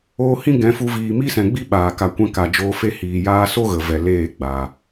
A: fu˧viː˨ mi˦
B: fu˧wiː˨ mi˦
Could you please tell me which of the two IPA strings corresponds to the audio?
A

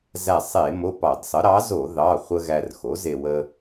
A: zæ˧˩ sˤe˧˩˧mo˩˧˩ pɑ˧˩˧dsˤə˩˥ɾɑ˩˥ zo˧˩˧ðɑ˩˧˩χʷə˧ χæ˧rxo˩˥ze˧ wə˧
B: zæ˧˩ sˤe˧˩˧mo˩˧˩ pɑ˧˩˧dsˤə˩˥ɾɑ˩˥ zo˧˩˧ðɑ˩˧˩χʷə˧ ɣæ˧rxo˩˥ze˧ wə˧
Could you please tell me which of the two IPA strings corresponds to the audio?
B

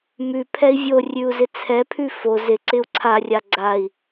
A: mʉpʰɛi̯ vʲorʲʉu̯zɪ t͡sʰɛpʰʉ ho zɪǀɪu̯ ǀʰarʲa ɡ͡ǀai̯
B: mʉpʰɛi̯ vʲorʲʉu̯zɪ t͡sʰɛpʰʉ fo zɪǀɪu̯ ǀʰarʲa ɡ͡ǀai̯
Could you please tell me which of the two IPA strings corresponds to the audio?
B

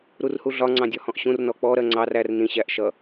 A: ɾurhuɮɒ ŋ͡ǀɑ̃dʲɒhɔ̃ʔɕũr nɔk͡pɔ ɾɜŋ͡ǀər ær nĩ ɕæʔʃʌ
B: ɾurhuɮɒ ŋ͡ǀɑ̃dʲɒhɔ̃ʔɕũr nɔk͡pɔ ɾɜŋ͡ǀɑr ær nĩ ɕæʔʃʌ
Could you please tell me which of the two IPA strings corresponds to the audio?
B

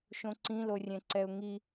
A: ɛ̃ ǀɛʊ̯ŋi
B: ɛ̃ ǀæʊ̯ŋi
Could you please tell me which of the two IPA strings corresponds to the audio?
A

